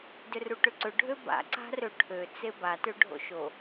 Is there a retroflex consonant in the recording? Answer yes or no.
yes